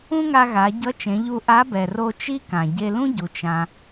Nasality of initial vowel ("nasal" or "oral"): nasal